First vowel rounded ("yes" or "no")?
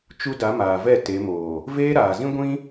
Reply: yes